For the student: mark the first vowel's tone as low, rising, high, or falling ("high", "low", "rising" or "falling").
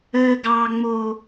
high